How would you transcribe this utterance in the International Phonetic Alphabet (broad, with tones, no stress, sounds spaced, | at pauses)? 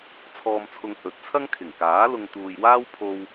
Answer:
t͡sʰ ɔː˧ m t͡sʰ ʊ˧ ŋ h ɵ˨˥ t̚ t͡sʰ ɐ˥ ŋ kʰ ɪ˨˩ ŋ k aː˨˥ l ʊ˧ ŋ t̪ uː˨ j w aː˥ w pʰ o˧ w